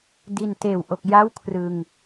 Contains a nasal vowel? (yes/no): no